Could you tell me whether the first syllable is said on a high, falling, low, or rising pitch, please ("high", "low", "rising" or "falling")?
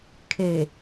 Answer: low